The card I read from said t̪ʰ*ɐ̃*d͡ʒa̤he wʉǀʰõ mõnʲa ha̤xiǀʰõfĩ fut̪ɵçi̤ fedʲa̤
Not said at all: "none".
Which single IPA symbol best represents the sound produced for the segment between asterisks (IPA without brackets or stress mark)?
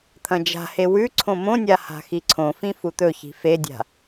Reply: ɐ̃